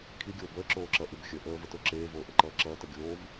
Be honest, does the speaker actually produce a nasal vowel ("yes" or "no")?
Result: no